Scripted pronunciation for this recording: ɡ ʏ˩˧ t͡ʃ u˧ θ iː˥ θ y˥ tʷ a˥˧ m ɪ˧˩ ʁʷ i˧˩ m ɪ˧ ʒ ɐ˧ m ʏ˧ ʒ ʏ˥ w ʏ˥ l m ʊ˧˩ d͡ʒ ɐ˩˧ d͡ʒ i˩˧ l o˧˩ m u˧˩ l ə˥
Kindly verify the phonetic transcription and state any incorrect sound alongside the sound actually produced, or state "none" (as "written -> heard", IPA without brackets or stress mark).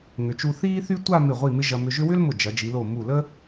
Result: ɡ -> ŋ